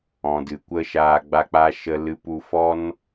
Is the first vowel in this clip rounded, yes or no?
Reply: yes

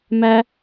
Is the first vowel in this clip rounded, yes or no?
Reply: no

